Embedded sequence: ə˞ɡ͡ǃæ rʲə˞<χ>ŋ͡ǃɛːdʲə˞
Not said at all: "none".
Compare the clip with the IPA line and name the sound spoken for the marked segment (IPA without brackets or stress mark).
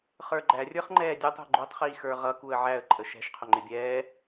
χ